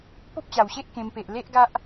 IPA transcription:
po˦p̚t͡ɕa˨˩wɕe˦ʔ kẽ˧mpe˨ʔ le˦ʔɡa˦ʔ

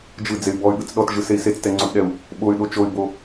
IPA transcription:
d͡ʒɯd͡zey̯ bɔy̯ɠɯt͡s ɗɔtʒɯsei̯ set͡stɛŋ͡ǀotɗɛu̯ | ɓoy̯ɗo t͡ʃoy̯bo

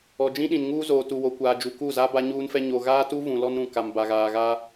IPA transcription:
ɔ˨d͡ʒĩ˦ɗĩ˨n ŋuː˦zoː˨tu˨ wo˨kʷaː˨d͡ʒu˨ ku˦˨za˦ ba˦ɲuː˦nfɛ˦ ɲo˨ɣaː˦tu˦ vũ˨lɔ˦nɾũ˨ ka˨mba˨ɣaː˨ɣaː˦

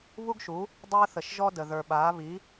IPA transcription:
βu˥ɡʃu˩˥ | dˤəː˧θə˩ʃʒɔ˧də˩ ðə˞˩ ɓaː˩˥ βi˩˥

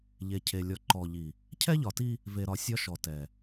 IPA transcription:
ʎe˨cʰe˨ lʲɔ˨ǃɔ˨ʎi˨ | cʰɛ˦ʎɒ˨ti˦ | ve˨ɾɒ˨sʲɒ˦ ʃɔ˨tɛ˨

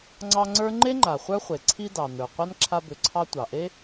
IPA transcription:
ŋ͡ǀɑ˦ŋ͡ǀə˞˥ ŋ͡ǃe˥ ŋ͡ǃa˩ χʷə˞˦χʷe˩ ǀʰi˦dɑ˩nə˞˩ qʷa˥nǁʰa˦bʏ˨ǀʰɑ˦ tʷɑ˩ʔe˥

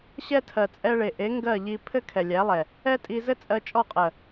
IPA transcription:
ɕɛ˦tʰɜ˨ t͡sʼɛ˧ɭe˨ʔe˨˦ ŋɡɜ˦˨ʎi˧ pʰɘ˦kʰɛ˨lʲæ˨˦lˠɛ˨ | ɛ˦tʼi˧ zɘ˦t͡sʼɜ˧t͡ʃʼɔ˦˨qʼɜ˨

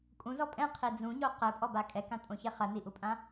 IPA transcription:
kʼũzɔ pʼɛ̃qʰi d͡zũɲo qɘpʼɔba kʼɛkãtʼõçɛ χɐniʔupʼã

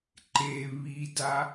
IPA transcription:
ǃe βida

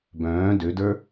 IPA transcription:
bœ̃ː dødə˞

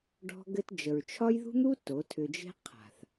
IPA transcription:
ɖɔ̤˦ɡɘ˦t d͡ʒə˨ɹt͡ʃʰɒ˦jðṳ˦n̪u˦ to˨˦tʰʏ˧d͡ʒe̤˦ qʰa̤˨θ

